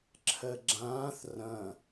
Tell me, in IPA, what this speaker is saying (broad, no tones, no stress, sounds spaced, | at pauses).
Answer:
ǁʰ ɜ ɡ͡ǁ ãː θ r ɐ̃